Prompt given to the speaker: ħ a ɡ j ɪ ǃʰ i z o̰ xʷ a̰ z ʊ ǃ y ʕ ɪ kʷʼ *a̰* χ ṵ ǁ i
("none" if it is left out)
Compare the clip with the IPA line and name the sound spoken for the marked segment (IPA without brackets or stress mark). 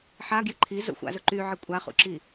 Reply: a